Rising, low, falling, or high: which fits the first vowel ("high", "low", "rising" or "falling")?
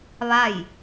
falling